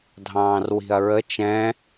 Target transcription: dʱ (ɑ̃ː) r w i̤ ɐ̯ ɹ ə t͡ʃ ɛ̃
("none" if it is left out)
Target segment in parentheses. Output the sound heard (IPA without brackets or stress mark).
ɑ̃ː